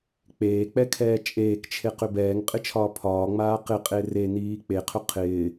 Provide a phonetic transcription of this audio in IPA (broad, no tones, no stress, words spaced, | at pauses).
k͡peːk͡pɛkʰɛː t͡ʃʼeːkt͡ʃʰeqʏ bɛːŋqʼɪt͡ʃʰɒː pʰɒːŋ͡maː qɪqʼe reniː k͡peqʰʏ qʰɪː